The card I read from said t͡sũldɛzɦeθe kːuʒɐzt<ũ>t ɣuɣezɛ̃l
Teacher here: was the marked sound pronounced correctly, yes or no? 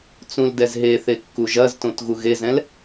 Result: no